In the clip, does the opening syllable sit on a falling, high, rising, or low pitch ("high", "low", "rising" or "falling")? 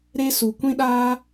high